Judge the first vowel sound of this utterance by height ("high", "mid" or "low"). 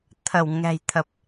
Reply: mid